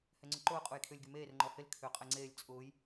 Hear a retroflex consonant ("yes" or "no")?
no